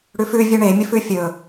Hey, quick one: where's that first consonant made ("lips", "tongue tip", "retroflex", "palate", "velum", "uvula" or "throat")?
retroflex